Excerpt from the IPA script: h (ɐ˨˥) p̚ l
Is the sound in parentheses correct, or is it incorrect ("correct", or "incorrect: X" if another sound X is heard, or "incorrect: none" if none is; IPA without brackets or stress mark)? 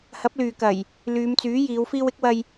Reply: correct